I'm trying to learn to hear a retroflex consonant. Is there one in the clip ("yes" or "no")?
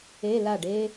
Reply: yes